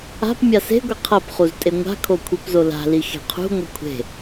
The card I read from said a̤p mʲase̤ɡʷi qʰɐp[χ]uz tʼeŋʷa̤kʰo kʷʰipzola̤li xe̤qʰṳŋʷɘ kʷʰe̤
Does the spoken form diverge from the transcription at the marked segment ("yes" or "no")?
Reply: no